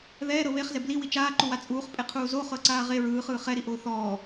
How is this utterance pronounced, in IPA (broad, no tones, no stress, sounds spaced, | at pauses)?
ð ɛː ɾ ɤ β e χ z ɛ b l i w i t͡ʃ aː ǃ u w a t͡sʼ uː χ pʼ e qʰ uː z o χ ɤ ǀ aː ʁ e ɹ ɯː χ ɯː χ ɛ ɾ i ʔ oː θ ɔː